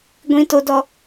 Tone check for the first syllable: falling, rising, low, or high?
high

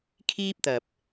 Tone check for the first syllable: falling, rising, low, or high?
high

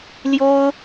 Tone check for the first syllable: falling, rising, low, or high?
high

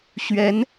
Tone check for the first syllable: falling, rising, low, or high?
rising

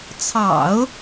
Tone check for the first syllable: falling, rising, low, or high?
low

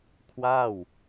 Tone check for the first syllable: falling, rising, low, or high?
falling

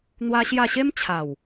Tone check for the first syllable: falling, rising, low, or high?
high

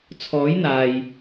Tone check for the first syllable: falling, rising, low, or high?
rising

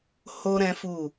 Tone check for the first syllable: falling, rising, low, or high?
high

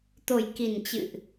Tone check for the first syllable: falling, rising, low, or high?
low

